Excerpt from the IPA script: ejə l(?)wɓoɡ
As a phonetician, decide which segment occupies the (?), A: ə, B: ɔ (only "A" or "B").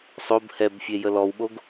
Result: B